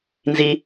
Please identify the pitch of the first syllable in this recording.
low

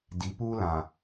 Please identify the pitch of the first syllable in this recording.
rising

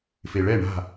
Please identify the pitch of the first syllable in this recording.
low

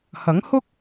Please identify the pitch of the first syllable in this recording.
rising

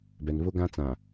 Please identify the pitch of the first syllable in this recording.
low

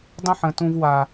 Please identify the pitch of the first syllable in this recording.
high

